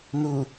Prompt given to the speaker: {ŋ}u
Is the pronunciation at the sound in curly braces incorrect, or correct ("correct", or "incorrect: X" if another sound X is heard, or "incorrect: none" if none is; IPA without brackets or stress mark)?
incorrect: n